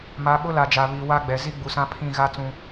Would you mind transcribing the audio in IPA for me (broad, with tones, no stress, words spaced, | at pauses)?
ma˨˦ɓʊ˦la˨d͡ʒa˨ βi˨wa˦ɡ͡bɛ˨ zi˦ɡ͡bu˨sã˦pʰĩ˦˨ ɣa˦t͡sũ˨